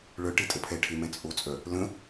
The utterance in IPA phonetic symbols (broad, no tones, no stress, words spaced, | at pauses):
ɭœʈe tʼəpʰɛʈʰe mɛ̃t͡sʼot͡sʼœ | lə̃